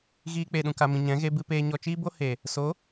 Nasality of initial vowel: oral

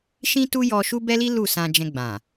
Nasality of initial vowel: nasal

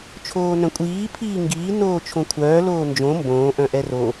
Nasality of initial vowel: oral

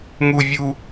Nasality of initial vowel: oral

